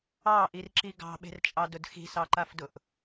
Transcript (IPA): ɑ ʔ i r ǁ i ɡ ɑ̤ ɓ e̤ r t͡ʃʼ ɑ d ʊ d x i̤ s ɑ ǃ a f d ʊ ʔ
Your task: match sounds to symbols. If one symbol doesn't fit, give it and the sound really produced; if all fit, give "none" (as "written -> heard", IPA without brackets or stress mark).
none